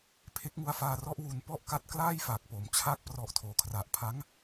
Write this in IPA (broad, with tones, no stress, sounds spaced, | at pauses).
pʰ e˦˥ k̚ ŋ u˧ a̯ f aː˧ r ɔ˦˥ ʔ w u˧ n p ɔ˥˩ ʔ k a˦˥ t̚ k l aː˥˩ j f a˨˩ k̚ p o˩˦ m t͡ɕʰ a˦˥ k̚ p r ɔ˨˩ ʔ tʰ oː˩˦ kʰ r a˨˩ ʔ pʰ a˦˥ ŋ